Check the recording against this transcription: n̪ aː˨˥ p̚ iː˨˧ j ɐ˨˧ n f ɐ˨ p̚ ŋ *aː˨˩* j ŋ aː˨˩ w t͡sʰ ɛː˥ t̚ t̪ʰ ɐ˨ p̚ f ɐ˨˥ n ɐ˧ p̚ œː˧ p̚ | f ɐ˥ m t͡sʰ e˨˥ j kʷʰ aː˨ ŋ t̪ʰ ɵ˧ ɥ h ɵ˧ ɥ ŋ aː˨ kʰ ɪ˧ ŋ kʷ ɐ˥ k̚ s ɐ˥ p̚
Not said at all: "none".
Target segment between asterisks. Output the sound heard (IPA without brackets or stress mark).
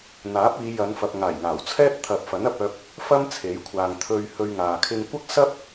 aː˨˩